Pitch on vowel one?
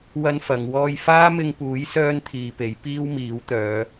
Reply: high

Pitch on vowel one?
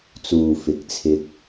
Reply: low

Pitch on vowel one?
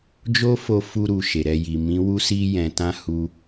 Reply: high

